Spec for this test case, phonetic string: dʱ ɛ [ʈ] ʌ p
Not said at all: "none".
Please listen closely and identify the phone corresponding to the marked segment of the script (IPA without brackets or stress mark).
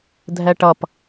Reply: ʈ